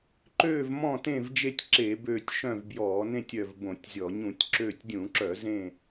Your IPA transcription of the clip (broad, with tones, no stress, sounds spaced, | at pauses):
ǃ øː˦˨ v m ɔ̃˦˨ t ẽ˦˨ v d͡ʒ e˦˨ tʲ ǁ e˧˩˧ b øː˦˨ tʲ ʃ œ̃˦˨ v b j ɔː˧˩˧ n ẽ˦˨ tʲ œ˦˨ v b õ˧˩˧ tʲ zʲ ɔ˧˩˧ ɲ ũ˧˩˧ tʲ ǁ øː˦˨ tʲ dʲ ũ˧˩˧ ǁ œ˧˩˧ z ẽ˦˨